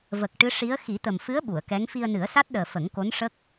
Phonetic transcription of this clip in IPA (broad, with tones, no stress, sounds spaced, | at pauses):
v ə˨˩ k̚ ʈ ɨ˧˥ ʂ i˧˥ ə̯ x i˨˩˦ t̪ ə˨˩ m f ɨ˧˥ ə̯ ɓ u˨˩˨ ə̯ k ɛ˧˥ ŋ f i˧ ə̯ n ɨ˨˩˦ ə̯ s a˦˥ t̚ ɗ əː˨˩ f ə˨˩˦ ŋ k o˧˥ n ʂ ə˦˥ k̚